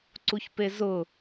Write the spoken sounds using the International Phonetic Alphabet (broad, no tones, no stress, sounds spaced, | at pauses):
ǀ u ç p e z ʊ